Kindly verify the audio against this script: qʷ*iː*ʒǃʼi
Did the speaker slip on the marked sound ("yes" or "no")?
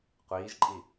no